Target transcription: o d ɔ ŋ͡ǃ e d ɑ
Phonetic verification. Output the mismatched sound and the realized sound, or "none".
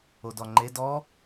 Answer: ɑ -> ɔ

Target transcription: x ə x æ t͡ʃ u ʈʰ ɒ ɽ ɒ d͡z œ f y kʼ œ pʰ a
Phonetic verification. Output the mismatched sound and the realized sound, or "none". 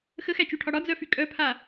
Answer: none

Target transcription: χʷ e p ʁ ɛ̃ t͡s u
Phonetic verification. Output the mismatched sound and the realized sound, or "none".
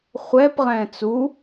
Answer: e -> ɛ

